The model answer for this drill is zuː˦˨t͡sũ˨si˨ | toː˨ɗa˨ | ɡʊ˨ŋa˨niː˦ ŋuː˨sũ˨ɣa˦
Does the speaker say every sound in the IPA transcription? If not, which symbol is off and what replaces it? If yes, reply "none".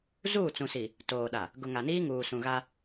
none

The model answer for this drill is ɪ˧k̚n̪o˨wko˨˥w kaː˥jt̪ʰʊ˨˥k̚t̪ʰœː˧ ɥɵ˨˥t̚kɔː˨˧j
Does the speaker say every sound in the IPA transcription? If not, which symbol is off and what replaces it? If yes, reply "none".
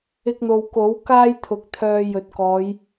ɥ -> j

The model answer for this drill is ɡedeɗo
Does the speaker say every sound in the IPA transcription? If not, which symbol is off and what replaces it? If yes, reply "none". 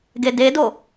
ɗ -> d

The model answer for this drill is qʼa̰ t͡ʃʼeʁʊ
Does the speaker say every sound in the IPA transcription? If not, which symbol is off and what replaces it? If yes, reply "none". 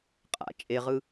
ʊ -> ɯ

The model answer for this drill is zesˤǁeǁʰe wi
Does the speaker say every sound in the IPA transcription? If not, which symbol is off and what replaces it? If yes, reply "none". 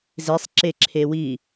none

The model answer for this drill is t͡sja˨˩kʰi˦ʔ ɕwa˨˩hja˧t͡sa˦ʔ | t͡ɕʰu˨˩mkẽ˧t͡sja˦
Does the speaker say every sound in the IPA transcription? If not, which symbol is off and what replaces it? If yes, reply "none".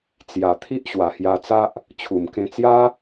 kʰ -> t̪ʰ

